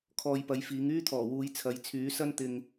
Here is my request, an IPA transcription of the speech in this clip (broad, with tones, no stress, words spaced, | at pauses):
kʰɔː˧jpɐ˨˥jfiː˨˥ŋ yː˥t̪ʰɔː˨˩wuː˨˧j t͡sʰɐ˨˧jt͡sʰyː˨˥sɐ˥n t̪ɪ˨ŋ